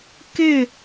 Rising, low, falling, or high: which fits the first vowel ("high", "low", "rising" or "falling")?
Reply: falling